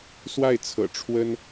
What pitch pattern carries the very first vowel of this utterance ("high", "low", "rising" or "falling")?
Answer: falling